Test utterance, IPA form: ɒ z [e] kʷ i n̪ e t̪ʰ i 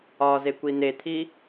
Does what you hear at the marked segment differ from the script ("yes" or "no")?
no